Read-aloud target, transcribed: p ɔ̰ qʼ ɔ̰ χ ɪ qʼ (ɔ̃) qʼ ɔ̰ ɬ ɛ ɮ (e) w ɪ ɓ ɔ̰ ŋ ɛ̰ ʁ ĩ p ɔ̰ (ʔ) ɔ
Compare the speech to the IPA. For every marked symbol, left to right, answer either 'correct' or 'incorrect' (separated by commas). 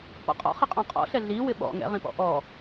correct, incorrect, correct